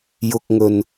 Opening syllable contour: high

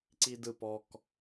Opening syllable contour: high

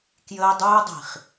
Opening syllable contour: high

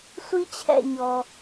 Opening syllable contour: high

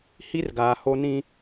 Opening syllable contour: high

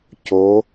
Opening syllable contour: rising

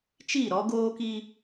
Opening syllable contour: falling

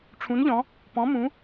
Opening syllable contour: rising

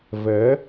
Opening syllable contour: rising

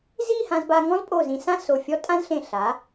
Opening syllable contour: falling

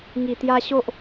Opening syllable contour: low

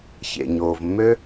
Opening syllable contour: low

